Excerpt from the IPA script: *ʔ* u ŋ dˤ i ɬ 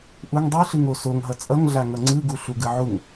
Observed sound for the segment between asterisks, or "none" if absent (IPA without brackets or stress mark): ʔ